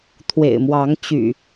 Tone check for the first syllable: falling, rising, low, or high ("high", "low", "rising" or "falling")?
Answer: low